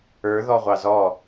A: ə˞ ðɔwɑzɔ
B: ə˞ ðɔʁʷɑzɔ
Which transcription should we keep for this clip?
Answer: B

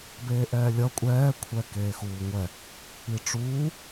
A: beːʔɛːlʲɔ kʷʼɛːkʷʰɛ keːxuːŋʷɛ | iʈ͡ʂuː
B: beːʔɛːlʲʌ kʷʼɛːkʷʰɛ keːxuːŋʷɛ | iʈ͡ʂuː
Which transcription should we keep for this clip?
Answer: B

